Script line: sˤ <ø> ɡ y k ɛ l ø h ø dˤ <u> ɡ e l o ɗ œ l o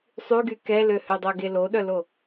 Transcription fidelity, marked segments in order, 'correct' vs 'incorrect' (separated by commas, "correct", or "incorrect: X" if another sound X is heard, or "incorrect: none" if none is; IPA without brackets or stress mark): incorrect: y, incorrect: o